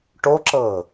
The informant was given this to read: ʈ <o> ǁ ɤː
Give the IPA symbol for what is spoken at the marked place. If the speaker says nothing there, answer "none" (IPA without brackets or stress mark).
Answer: o